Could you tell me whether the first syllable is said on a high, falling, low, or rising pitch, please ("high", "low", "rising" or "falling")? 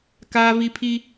high